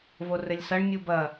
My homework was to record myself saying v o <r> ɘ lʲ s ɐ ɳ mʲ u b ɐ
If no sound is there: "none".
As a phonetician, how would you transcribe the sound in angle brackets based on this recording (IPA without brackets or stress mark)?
r